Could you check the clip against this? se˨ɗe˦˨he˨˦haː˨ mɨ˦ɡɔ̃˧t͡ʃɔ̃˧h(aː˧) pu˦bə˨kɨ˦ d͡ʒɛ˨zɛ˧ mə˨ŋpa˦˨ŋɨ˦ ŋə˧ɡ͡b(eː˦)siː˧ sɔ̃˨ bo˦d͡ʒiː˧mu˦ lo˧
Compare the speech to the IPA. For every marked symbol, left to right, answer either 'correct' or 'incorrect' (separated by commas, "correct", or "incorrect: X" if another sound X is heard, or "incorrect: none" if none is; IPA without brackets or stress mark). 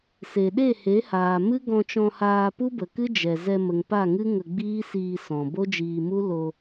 correct, incorrect: iː˦